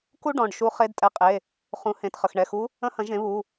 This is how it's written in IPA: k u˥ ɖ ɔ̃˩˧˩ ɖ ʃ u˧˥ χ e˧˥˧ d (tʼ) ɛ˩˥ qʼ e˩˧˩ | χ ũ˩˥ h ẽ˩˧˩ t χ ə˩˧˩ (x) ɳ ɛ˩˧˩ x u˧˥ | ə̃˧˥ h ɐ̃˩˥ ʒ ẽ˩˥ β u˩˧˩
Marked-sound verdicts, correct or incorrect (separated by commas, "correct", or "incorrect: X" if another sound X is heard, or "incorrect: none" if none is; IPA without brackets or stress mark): correct, correct